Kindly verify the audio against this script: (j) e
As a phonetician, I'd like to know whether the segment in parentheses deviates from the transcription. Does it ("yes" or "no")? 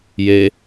no